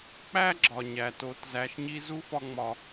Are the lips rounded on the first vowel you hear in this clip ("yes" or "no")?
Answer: no